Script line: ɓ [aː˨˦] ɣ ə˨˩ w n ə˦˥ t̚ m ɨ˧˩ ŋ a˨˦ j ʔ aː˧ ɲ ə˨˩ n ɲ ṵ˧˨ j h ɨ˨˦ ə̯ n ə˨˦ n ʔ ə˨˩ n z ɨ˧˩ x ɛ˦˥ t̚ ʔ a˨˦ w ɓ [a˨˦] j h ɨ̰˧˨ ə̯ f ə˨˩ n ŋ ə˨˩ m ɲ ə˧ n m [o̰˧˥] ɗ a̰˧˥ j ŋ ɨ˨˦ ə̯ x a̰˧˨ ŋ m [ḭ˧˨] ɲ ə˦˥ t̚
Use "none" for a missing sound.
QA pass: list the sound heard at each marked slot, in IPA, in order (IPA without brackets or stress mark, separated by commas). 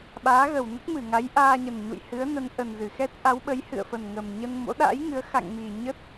aː˨˦, ə˨˦, o̰˧˥, i˨˩